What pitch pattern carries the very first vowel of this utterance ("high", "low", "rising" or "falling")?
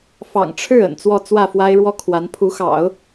low